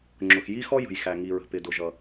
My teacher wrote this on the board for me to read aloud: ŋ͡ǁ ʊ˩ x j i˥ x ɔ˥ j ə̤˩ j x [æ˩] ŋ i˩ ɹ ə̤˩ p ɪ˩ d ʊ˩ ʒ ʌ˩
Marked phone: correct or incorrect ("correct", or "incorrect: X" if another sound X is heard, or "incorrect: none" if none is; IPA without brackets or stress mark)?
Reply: correct